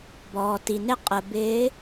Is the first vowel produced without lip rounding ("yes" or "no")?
no